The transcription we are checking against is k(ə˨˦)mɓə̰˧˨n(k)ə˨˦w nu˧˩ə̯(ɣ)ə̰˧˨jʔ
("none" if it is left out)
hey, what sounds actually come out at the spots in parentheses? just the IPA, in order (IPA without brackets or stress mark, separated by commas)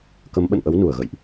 ə˨˦, ʔ, ɣ